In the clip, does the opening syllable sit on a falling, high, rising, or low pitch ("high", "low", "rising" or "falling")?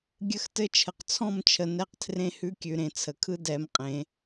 high